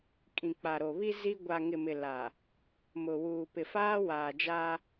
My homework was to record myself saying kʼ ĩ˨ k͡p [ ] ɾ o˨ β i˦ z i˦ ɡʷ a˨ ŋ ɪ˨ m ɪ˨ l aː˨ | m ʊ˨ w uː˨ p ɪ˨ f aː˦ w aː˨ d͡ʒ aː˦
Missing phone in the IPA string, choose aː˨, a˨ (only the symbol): a˨